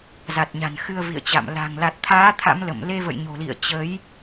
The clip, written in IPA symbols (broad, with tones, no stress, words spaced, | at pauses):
za˨˩t̚ɲa̤˨˩n xɨ˧ə̯vḭ˧˨ə̯t͡ɕa̰˧˨m la̤˨˩ŋla˨˩t̚t̪ʰaː˨˦ t̪ʰa̰˧˥mlə̰˧˨m le˧və̰˧˨j ɲo̤˨˩lḭ˧˨ə̯ t͡ɕə˨˦j